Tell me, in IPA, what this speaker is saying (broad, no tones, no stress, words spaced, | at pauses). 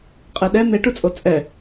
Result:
qʼeɗɛ n̪eʈut͡sʼo t͡sʼɛ